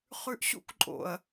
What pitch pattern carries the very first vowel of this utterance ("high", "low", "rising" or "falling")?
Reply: low